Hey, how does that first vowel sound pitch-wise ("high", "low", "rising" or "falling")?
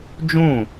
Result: falling